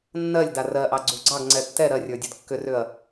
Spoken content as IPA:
nːɜlʲda rɜʔɑɡ͡ǀu ɡ͡ǀɑɡŋ͡ǀɛ tːɛ ɾɜrʲə˞dʲə˞d kːʏrʏɐ̯

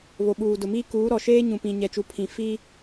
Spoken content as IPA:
βo˨ɓuː˨dʊ˨miː˦ kuː˨˦ɾɔ˨ʃeː˦ ɲũ˨pĩ˨ ɲɛ˨t͡ʃu˨ pʰĩ˨ fiː˦

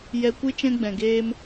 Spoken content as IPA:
jɛ˧kʷɨ˦ t͡ʃɛ̃˦ɡ͡bɛ̃˨ɡeː˦m

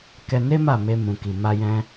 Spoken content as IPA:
kɛ˧ne˦ ma˦˨me˧mũ˨ki˨ ma˧jɛ̃˧

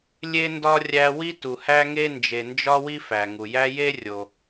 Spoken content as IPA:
lʲe˦ndɒ˦ rʲæ˦ wi˦tu˨hæ˦ŋe˦ nd͡ʒe˨nd͡ʒɒ˦ wi˦fæ˨ŋu˨jæ˦ je˦rʲo˨

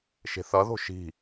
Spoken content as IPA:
ʃe̤θʌðo̤ ʃi̤

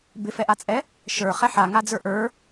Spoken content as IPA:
bɪfɛʔat͡sʼɛ | ʃə˞ χɛħaŋad͡zə˞ ʔə˞

